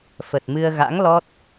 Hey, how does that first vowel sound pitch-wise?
low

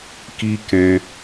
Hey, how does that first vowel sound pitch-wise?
high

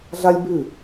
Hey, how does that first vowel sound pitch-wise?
high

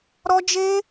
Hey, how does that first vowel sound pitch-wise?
high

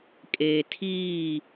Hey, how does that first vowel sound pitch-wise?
low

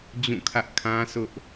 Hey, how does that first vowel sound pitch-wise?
falling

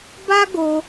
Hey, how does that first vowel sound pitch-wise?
high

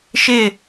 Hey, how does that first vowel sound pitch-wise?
falling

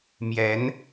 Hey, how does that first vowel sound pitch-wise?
rising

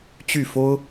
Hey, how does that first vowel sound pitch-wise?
falling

